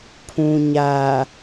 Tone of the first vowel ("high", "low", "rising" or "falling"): low